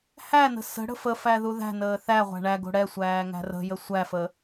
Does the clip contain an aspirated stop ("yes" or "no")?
no